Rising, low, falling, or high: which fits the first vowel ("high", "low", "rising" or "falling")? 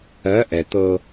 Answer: rising